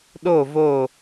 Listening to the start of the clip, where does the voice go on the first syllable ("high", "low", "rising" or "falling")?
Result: falling